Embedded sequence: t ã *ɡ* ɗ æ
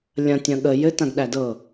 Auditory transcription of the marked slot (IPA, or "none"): ɡ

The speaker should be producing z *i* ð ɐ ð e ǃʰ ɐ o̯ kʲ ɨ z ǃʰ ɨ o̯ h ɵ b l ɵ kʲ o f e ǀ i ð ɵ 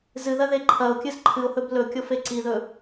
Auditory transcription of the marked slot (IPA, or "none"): ɨ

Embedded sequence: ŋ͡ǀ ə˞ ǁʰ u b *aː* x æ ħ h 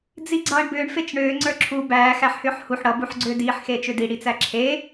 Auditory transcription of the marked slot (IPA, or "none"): æː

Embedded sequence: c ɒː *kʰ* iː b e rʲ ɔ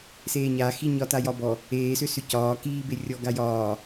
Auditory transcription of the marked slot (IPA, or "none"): k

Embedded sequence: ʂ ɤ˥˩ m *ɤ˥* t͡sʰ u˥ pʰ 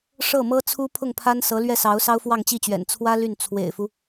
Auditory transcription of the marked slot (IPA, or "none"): ɤ˥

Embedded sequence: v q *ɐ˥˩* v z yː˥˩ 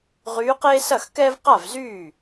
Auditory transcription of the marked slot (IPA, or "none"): a˥˩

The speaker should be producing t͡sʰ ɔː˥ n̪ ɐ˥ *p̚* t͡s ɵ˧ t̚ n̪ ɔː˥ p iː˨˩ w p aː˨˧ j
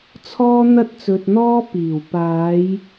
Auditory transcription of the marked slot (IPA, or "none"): t̚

